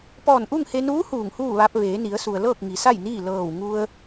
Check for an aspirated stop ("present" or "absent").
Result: absent